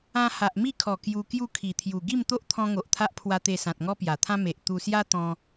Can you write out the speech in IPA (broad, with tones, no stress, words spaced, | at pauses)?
ã˧ha˨ʔmi˥˧kʰɔ˨˩ kju˧ kju˥˧kʰi˨˩t̪ʰju˨˩ ɡi˥˧mt̪o˦ʔt̪ʰɔ̃˧ ŋo˨ʔt̪ʰa˦ʔpʰwa˧t̪e˧ sã˨t̚ŋɔ˦pja˨˩t̪ʰã˦ me˨ʔ t̪u˧sja˦t̪ɔ̃˧